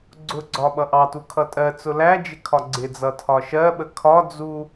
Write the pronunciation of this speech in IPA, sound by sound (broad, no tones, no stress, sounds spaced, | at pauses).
ɡ͡ǀ ʊ ɡ͡ǀ ɒ ɓ ʌ ʔ ɑ t u kʰ ʌ tʼ ɜ t͡s ʊ l æ d͡ʒ ɪ kʰ ɒ ɡ͡ǀ ɪ d͡z ʌ tʰ ɒ ʃ ɜ ɓ ə kʰ ɒ d͡z u